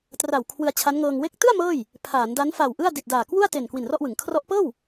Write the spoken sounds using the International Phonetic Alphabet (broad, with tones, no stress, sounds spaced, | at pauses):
t r a˨˩ w kʰ w ɯ˧ a̯ t͡ɕʰ a˦˥ n ŋ ɤː˧ ŋ w e˦˥ k̚ t ɯ˥˩ a̯ m ɤː˥˩ j | pʰ aː˩˦ n d a˦˥ n f a˨˩ w ʔ ɯ˥˩ a̯ d i˨˩ t̚ d aː˨˩ k w u˥˩ a̯ t e˨˩ n k w i˨˩ n r ɔ˥˩ ʔ w ɯ˩˦ ŋ kʰ r ɔ˦˥ ʔ p ɤː˥˩ w